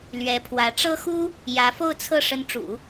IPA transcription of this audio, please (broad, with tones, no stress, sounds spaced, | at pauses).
l ɥ ɛ˧˥ pʰ w ä˧˥ ʈ͡ʂ ɤ˥ x u˥ | j ä˧˥ f o˥˧ ʊ̯ t͡sʰ ɤ˥˩ ʂ ə˧˥ n ʈ͡ʂ ṵ˨˩˦